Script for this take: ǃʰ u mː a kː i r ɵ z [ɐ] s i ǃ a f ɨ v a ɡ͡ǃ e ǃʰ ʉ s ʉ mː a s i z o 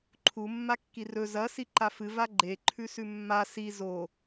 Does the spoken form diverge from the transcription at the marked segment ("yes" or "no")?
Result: no